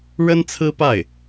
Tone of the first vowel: high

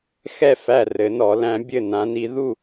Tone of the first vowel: falling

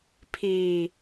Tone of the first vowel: low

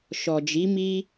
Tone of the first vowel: low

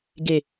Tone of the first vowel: falling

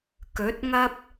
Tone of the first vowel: rising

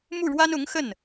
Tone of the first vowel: falling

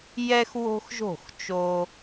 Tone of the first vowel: high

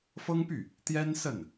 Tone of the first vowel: high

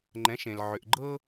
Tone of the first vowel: rising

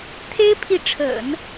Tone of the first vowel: high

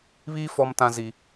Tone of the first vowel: high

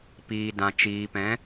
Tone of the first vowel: low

